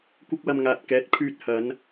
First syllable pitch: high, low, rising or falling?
high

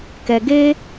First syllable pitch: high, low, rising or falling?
low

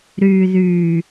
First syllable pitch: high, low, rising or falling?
low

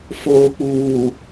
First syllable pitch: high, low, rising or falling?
low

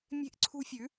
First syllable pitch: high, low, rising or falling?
high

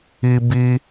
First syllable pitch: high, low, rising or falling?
high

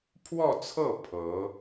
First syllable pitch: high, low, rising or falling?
falling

